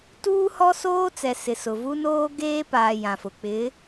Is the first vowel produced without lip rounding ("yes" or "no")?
no